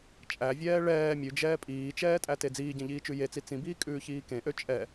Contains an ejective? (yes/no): yes